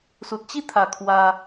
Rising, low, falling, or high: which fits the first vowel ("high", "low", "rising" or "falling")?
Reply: low